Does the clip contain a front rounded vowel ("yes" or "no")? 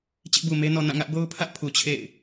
no